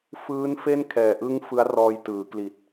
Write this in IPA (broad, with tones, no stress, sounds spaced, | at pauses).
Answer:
f ɯː˦˥ n f e˥˩ n kʰ ɛː˨˩ ʔ ɯ˦˥ ŋ f ɯ˦˥ a̯ r ɔː˧ j t ɯː˩˦ k l i˨˩ t̚